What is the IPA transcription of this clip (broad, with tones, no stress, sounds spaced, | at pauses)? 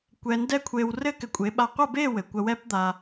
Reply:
kʷ ɛ˧ n d ɛ˦ kʷʰ e˧ w r ɘ˦ k ɘ˨ kʷʼ e˨˦ ɓ a˧ qʷ ɐ˦˨ b e˦˨ w ɘ˨ kʷ ɐ˧ w ɛ˦ p d̪ a˧